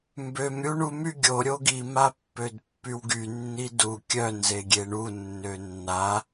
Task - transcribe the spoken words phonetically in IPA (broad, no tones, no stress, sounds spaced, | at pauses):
m b ø m ɾʲ u ɳ u m y ɡʲ o ɾʲ o ɡ i m a pː ø d pː y w ɡ y nː i d u kʲ œ n z e ɡʲ e ɳ u nː ø nː a